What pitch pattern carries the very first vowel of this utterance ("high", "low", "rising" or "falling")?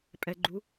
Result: low